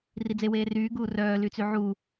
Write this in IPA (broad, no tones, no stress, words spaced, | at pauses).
rid͡zeweː ryːɡuː rœːlyt͡sy ʕu